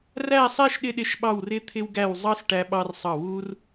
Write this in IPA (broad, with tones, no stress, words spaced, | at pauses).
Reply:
ræ˥˧sˤɛ˥˧ʃ ɗɪ˥ɗɪ˥˧ʃɓɑ˥˧wrɪ˥ t̪ʰɪ˥wɡæ˥˧w zˤɑ˥s ʈæ˥ɓɑ˥rsˤɑ˥˧ wu˥r